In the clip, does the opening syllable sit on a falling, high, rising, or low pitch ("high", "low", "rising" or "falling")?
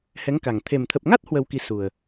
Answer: rising